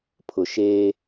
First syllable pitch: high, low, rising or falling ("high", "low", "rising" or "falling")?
low